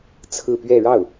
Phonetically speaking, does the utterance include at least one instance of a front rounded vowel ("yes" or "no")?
no